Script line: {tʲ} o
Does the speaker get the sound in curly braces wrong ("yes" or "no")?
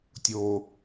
no